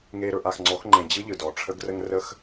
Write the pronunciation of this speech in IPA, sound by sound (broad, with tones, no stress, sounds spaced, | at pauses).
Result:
ŋ e˦ ɾ ɵ˦ ʔ a˧ x ŋ͡ǀ ɔ˨˦ x ŋ͡ǃ ẽ˨ d͡ʑ ɯ˦ ʎ ɯ˨ d ɔ˨ ʈ͡ʂʰ ə˦ ɡ r ə˦ ŋ r ə˦ x